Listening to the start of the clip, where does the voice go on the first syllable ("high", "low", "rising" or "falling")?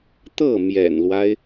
falling